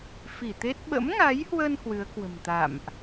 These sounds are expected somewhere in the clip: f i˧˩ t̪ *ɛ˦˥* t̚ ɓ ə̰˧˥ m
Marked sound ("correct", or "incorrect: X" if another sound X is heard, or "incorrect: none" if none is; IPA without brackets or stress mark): incorrect: e˦˥